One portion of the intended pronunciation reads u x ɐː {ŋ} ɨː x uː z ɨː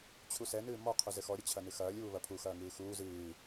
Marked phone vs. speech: correct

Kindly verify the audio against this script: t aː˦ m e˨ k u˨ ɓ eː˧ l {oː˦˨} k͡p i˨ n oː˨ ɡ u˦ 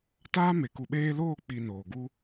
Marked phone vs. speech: correct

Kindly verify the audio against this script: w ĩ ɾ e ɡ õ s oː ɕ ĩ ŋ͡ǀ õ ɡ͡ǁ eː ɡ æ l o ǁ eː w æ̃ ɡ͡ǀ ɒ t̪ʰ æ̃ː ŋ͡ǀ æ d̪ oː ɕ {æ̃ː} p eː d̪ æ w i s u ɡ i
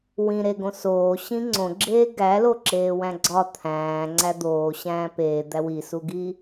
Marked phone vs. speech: correct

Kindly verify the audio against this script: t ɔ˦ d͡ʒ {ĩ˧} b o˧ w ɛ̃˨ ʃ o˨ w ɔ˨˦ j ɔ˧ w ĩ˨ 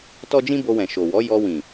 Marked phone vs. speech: incorrect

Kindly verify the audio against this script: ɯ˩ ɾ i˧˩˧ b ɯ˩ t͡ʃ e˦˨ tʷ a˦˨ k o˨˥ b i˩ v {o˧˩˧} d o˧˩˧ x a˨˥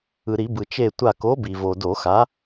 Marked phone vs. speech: incorrect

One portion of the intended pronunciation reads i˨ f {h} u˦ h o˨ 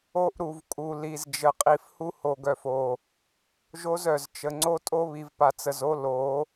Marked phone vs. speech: correct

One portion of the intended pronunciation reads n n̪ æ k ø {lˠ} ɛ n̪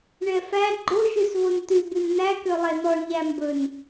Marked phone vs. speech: correct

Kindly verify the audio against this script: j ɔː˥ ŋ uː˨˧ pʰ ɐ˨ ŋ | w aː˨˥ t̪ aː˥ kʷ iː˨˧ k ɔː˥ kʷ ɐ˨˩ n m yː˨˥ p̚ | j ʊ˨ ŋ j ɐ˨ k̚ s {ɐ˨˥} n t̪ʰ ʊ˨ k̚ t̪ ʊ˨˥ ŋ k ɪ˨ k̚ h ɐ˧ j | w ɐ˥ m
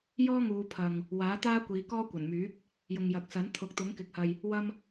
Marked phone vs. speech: correct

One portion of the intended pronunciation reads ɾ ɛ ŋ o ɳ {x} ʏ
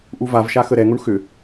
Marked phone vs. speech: correct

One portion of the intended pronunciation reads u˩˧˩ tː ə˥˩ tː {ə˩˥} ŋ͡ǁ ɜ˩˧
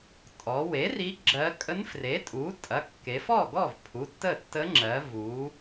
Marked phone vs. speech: incorrect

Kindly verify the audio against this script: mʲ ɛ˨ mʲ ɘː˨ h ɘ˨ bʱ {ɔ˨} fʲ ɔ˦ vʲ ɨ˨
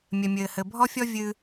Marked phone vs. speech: incorrect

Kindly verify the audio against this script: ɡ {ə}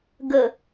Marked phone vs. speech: correct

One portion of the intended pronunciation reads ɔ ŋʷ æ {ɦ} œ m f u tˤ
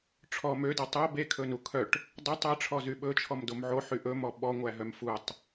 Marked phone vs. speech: correct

